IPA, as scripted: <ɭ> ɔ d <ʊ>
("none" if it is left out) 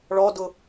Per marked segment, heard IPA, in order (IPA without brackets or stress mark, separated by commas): ɭ, ʊ